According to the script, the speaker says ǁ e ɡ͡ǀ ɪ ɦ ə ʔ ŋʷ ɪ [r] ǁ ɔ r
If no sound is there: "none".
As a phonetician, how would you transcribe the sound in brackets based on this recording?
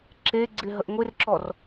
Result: r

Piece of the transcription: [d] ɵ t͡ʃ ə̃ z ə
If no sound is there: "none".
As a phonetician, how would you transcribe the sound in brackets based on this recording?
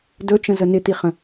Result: d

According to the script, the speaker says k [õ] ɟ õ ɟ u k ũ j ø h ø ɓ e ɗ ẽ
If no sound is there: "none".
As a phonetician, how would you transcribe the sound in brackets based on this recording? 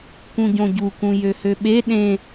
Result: ũ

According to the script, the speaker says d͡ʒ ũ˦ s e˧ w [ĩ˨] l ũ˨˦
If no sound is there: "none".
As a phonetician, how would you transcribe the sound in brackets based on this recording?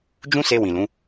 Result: ĩ˨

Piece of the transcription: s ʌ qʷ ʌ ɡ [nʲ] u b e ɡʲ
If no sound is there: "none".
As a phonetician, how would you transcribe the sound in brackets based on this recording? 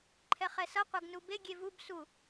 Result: n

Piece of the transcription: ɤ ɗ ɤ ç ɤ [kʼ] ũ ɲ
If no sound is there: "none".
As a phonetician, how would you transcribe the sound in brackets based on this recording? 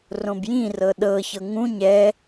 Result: ŋ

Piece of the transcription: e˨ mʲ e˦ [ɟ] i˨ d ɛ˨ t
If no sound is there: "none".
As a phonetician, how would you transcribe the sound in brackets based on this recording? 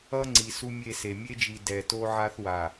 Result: d͡ʒ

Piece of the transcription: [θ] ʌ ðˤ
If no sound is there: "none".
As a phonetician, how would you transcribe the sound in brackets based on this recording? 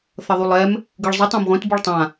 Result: θ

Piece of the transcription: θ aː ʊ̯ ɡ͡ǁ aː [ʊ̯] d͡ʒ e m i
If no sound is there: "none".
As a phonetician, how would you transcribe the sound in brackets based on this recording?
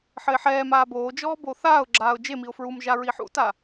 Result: ʊ̯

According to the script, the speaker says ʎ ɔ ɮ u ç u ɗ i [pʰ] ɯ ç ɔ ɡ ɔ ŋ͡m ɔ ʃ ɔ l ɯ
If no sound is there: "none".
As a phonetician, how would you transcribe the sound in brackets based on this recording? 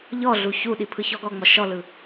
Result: pʰ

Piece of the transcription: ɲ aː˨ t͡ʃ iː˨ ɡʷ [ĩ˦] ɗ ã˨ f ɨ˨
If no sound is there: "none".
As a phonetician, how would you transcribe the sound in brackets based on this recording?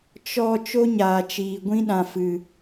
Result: ĩ˦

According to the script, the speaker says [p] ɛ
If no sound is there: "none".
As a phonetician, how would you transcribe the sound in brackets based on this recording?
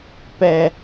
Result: p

